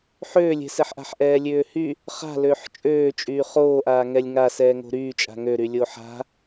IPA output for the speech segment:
ħ øː lʲ ɛ̤ s ɛ ħ ʔ a̤ ħ ʔ ɛː lʲ øː h y | χ a̤ l øː ħ t͡ʃʼ øː t͡ʃʼ yː χ oː ʔ aː ŋ ɛ lʲ ŋ a s ɛː ŋ o̤ ɾ yː t͡ʃʼ a̤ ŋ ø ɾ y lʲ o ħ a̤

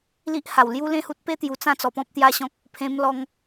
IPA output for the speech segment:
l i˦ ʔ h a˨˩ w l j u˦ l ẽ˥˧ h u˦ t̚ p e˦ t̪ j u˨˩ t͡s ã˥˧ t͡s ɔ˧ p ɔ̃˦ p̚ t̪ j a˦ ɕ ɔ̃˦ k̚ | pʰ ẽ˧ m l ɔ˧ ŋ

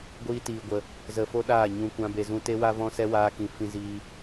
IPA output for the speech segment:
ɡʷ iː˦ t iː˧ ɡʷ ə˧ | z ə˧ f o˦ ɗ aː˦˨ ɲ ũ˦ kʷ ã˦ b e˧ z ũ˦ t e˦ w a˦ v ɔ̃˦ s ɛ˦ w aː˦ k ĩ˧ f ĩ˦ z iː˦

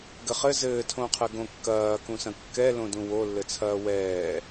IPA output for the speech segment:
ɡ ɘ χ ɘ z ɘː tʰ õ qʰ ɘ ɡ õ kː ɐː k ũ s ɐ̃ kː ɛ l õ d ũ w o lː ɘ t͡sʰ ɐː w ɛː

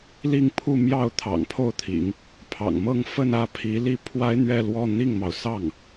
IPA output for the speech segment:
l i˥˧ ŋ pʰ u˥˧ m j ɑ˥˩ ʊ̯ t̪ʰ ɑ̰˨˩ ŋ pʰ o˥˩ ʊ̯ t̪ʰ ḭ˨˩˦ ŋ | pʰ ɑ̰˨˩ ŋ m ɤ˥˧ ŋ f ə˥˧ n ä˥˩ pʰ i˧˥ l i˥˩ pʰ w a˥ ɪ̯ n̪ ɥ ɛ˥˧ l w ɔ˥˧ n̪ i˥˩ ŋ m ɑ˩ ʊ̯ s ɑ˥˩ ŋ

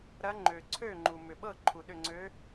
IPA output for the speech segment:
ɾ ɐː˧˥ ŋ͡ǃ øː˩ ǀʰ øː˥˩ ŋ͡ǃ u˩ m ʏ˩ ɓ ɤ˥˩ ǃʰ u˩ ɗ ʏ˥˩ ŋ͡ǀ ø˧˥

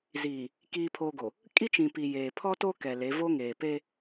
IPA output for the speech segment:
z iː˨ | k iː˨ pʰ oː˨ ɡ o˨ | kʼ i˦ t͡ʃ ĩ˨ p i˨ j eː˨ pʰ ɔ˦ t o˦ k ɛ˨ l e˨˦ v o˦ ŋ eː˨ p e˦

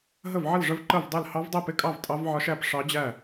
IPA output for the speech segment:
ɦ ə˥˨ v ʕ ə˥˨ l ʐ ə˦˥ v ǃ ə˥˨ v dˤ ɛ˥˨ l h ɑ˦˥ v dˤ ɛ˥˨ p ɪ˥˨ kʼ ɑ˥˨ v tʼ ɑ˦˥ v ʕ ɒ˦˥ ʃ æ˥˨ p ʂ ɑ˦˥ d͡ʑ æ˥˨

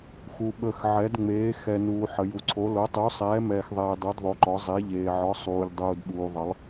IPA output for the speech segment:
x u˨ ɓ ə˨ x ʕ ɛ˨˦ d ŋ͡m eː˨˦ x ɛ˨ n uː˨ ħ ə˨ j u˨ ǀʰ o˨˦ l o˨˦ tˤ u˨˦ sˤ ɛː˨˦ m ɛː˨ x ðˤ eː˨ dˤ u˨˦ d ðˤ o˨˦ ǃ ɔ˨˦ zˤ e˨˦ ʎ eː˨ ʕ ɔ˨˦ sˤ uː˨ ʎ dˤ uː˨ d ɓ uː˨ ðˤ ə˨˦ lˠ

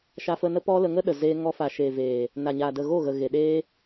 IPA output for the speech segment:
ʃ a˧ f ə˧ n ə˦ p ɔ˦ l ə˧ ŋ ə˦ ɗ ə˨ z eː˧ ŋ ɔ˧ f a˨ ʃ eː˨ v eː˨ | n a˨ ɲ aː˨ d ə˨ ɣ o˦˨ ɣ ə˨ ɣ e˨ ɗ eː˧

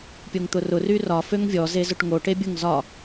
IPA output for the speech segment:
pʲ o ŋ t̪ ʊ r ʊ r y r ɒ f ø ŋ vʲ ɔ z e z ʊ ʈ ŋ o ʈ e bʲ ʊ ŋ z ɒ

